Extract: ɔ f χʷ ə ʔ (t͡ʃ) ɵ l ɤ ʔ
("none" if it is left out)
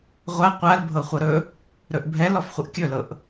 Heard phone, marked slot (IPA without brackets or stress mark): kʲ